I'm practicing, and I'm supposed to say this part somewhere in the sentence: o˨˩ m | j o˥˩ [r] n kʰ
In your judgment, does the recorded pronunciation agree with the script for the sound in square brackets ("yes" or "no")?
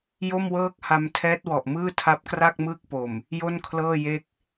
no